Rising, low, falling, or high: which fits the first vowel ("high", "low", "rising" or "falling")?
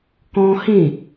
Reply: high